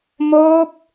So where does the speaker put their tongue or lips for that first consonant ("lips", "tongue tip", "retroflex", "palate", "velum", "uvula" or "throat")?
lips